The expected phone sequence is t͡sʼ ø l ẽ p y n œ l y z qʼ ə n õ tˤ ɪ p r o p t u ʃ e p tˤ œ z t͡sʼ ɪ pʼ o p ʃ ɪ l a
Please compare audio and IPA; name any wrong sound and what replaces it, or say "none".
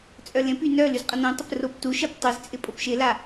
ø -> œ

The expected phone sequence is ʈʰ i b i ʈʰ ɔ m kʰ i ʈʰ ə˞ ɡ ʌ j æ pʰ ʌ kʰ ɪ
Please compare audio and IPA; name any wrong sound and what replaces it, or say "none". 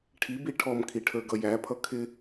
none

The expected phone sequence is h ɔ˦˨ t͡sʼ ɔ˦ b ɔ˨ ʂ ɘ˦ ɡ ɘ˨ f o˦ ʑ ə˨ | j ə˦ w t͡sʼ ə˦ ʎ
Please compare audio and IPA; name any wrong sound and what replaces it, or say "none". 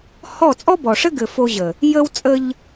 none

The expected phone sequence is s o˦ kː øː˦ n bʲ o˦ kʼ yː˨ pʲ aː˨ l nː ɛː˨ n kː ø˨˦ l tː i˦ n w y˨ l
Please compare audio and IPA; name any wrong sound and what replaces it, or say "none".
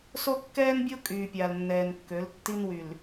øː˦ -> ɛː˦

